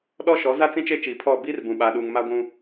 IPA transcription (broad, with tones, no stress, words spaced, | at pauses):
ɗɔ˦ʃɔ˨˦za˦ t͡sĩ˦t͡ʃe˦t͡ʃiː˨ pʰɔ˦˨ biː˦rbũ˨ ɓaː˨ɗuː˨ŋ ma˦ɡʷũ˦